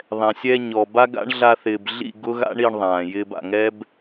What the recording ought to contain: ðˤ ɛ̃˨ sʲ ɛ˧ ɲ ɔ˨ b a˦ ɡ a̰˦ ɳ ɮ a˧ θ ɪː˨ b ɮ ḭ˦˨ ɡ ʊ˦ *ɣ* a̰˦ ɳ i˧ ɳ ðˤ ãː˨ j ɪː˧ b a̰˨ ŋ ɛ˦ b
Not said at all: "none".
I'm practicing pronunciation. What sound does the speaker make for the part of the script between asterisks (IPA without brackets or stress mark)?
ɣ